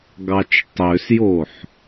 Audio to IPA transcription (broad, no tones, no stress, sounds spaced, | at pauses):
ɡ ɑ t͡ʃ tˤ ø s j o ħ